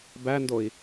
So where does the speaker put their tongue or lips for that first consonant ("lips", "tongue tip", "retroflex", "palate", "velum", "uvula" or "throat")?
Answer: lips